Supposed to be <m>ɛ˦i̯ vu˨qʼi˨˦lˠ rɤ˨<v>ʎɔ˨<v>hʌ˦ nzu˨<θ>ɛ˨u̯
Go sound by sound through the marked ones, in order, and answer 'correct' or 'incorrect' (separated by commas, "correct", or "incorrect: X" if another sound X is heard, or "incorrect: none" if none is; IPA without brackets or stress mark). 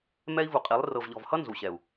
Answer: correct, correct, correct, incorrect: ɕ